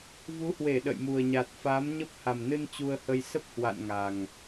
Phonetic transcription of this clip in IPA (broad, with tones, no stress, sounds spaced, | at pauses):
v u˨˦ h w e˧˩ ɗ ə̰˧˨ j m u˨˩ ə̯ ɲ a˨˩ t̚ f a˨˦ m ɲ ə˦˥ p̚ h a˨˩ m n ɨ˧ n t͡ɕ u˧ ə̯ h ə˧ j s ə˦˥ p̚ h w a̰˧˨ n ŋ a˨˩ ŋ